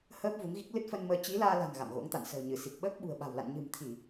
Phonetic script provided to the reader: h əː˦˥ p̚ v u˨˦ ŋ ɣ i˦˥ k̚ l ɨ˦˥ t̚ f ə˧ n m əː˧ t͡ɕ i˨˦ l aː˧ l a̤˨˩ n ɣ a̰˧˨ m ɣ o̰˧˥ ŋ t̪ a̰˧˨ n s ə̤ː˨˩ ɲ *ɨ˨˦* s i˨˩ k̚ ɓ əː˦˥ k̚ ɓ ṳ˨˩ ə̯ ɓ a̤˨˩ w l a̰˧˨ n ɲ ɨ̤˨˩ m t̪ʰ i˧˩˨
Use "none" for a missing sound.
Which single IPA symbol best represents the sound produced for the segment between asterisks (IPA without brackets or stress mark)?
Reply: ɨ˧˩